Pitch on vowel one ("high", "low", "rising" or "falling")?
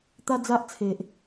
high